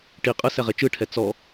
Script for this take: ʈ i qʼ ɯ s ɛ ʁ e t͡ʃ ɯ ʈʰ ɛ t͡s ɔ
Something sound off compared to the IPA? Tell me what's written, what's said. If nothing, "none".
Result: none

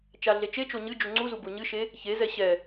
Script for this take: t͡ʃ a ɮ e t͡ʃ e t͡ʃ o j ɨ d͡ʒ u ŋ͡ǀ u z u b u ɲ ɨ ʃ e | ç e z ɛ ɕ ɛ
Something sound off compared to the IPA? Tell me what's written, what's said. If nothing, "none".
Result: j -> ɲ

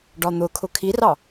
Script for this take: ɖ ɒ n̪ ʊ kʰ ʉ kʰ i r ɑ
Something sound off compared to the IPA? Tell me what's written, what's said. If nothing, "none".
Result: ʉ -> ʊ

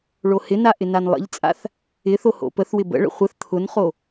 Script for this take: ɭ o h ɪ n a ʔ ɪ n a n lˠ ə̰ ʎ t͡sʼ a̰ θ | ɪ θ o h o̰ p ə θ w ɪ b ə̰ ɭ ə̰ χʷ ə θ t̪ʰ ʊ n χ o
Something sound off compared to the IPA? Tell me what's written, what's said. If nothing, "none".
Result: none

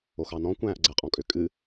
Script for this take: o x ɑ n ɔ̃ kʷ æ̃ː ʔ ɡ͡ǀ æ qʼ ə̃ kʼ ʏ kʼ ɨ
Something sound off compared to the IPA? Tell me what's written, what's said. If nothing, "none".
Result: ə̃ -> ɔ̃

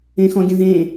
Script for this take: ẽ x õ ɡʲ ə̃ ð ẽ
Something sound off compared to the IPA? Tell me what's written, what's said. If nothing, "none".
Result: õ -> ɔ̃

